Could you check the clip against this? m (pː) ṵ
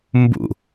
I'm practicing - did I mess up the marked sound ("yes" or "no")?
yes